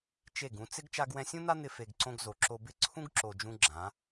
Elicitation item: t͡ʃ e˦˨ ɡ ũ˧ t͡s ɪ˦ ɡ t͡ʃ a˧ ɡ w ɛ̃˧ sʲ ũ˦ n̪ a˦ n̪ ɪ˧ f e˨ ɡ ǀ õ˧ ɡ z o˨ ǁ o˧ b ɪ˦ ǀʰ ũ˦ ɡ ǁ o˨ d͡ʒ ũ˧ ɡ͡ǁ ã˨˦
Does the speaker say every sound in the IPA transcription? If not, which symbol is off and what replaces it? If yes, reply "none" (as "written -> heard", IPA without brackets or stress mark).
none